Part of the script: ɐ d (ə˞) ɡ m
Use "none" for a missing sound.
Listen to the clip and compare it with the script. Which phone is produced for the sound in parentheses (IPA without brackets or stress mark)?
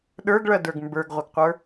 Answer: ə˞